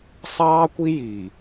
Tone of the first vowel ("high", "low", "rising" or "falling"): high